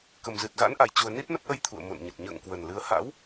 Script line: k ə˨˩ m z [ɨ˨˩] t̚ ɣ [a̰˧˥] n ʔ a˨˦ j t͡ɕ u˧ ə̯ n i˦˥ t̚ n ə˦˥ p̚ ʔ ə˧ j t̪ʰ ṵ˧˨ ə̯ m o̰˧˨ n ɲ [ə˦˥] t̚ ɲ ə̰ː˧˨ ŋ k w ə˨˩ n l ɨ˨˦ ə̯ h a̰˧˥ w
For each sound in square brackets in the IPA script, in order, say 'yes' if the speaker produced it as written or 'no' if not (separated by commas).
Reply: yes, yes, no